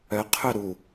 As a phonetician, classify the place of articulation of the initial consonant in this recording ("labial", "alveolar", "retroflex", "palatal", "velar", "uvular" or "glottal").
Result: uvular